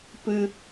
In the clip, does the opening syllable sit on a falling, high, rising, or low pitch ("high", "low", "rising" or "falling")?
low